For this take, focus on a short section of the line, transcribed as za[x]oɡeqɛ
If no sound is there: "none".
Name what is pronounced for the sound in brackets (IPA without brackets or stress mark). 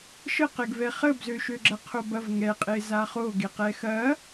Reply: χ